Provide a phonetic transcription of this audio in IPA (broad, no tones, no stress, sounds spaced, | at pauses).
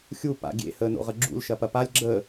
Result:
xʲ u p a̰ ɡʲ ḛ h əː n o̰ ʁ ə ɡ͡ǁ ṵ l ʃ ɐ p ɐ p a lʲ ɡ͡ǁ ə